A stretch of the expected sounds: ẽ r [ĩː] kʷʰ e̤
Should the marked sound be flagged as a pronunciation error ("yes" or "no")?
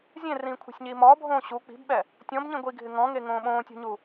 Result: no